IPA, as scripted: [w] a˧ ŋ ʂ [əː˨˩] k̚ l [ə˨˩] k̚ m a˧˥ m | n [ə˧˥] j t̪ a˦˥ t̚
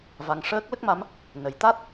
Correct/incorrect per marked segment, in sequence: incorrect: v, incorrect: əː˦˥, incorrect: ə˦˥, incorrect: ə˨˩˦

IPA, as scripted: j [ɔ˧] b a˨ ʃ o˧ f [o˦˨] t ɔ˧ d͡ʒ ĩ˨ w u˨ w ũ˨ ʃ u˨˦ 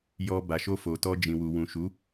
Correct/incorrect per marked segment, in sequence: correct, incorrect: o˨

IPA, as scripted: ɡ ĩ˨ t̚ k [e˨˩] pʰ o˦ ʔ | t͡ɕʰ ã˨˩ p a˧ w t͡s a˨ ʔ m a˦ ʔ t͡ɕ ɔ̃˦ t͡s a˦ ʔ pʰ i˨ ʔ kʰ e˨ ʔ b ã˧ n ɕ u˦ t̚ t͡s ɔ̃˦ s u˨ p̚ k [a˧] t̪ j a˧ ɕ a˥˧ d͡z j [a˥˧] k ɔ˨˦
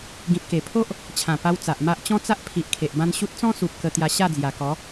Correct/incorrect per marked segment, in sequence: correct, incorrect: ə˧, incorrect: a˨˩

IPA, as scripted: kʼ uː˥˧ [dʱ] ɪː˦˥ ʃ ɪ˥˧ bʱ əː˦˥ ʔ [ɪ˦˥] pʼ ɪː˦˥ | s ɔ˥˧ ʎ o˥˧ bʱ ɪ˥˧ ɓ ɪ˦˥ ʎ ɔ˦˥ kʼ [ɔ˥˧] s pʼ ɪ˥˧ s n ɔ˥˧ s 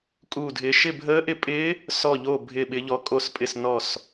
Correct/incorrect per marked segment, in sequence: correct, correct, incorrect: o˥˧

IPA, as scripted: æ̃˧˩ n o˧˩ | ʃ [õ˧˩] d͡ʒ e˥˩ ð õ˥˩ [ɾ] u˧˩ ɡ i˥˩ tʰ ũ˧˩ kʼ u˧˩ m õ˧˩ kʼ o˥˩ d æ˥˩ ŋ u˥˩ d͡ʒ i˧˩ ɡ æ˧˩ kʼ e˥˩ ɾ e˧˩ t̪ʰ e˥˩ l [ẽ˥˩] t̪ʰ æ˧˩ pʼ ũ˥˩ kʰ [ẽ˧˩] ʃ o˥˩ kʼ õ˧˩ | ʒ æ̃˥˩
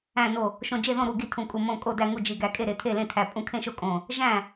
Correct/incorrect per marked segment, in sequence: correct, correct, correct, incorrect: ẽ˥˩

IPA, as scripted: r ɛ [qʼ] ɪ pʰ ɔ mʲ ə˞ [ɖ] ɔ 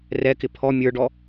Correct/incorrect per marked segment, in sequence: incorrect: k, correct

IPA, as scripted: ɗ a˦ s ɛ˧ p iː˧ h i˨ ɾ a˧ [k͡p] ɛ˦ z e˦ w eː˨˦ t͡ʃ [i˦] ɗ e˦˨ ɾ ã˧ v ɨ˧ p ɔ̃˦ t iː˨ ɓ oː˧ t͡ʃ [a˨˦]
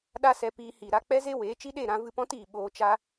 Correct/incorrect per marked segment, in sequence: correct, correct, incorrect: a˦

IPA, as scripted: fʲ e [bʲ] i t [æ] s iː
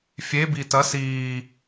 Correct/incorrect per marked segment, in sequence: incorrect: b, incorrect: ɐ

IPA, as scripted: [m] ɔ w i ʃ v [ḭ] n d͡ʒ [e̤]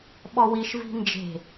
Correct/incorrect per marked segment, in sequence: incorrect: ɓ, incorrect: i̤, correct

